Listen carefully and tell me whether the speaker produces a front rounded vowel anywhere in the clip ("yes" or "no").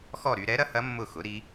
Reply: yes